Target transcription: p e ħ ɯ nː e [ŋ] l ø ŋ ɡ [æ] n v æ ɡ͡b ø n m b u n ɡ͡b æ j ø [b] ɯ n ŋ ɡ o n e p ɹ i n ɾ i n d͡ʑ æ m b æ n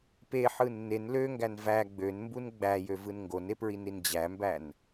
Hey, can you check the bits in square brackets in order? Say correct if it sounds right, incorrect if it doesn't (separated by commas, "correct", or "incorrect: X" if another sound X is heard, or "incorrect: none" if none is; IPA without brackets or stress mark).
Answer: incorrect: n, correct, incorrect: v